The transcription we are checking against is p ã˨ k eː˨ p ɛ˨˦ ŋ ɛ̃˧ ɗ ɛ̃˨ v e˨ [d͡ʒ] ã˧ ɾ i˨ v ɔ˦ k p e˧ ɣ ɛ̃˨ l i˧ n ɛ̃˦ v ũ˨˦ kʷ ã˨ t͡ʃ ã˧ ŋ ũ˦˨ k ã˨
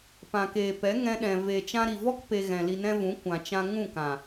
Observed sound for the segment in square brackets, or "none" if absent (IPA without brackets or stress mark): t͡ʃ